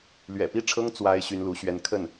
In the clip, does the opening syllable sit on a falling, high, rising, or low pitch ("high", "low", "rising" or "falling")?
low